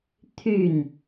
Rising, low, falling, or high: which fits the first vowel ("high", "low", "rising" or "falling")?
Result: falling